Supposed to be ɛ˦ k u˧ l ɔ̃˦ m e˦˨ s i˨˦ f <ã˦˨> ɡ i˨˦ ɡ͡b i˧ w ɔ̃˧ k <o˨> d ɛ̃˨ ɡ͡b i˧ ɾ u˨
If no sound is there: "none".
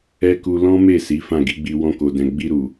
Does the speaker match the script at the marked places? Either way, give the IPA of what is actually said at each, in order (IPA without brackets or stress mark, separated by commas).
ã˦˨, o˨